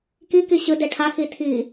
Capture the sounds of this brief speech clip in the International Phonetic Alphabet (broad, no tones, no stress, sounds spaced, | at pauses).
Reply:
k i k i ɕ ɯ d e ʈʰ a x i tʰ i